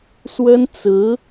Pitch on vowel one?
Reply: high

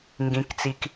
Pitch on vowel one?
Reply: low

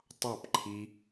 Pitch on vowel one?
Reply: falling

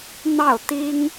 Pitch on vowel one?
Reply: falling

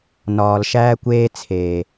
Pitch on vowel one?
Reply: low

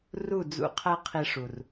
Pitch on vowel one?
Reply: falling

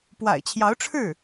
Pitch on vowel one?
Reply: low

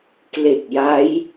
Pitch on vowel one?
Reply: low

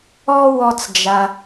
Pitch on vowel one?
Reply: high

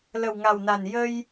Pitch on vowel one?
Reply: low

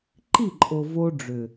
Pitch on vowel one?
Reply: falling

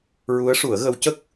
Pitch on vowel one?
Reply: rising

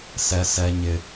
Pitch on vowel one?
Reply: high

